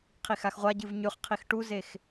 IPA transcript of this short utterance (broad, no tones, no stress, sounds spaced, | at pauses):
qʰ i x a x ʁʷ a ɟ ɨ v ɲ ʉ χ qʰ i x ʈ u z e x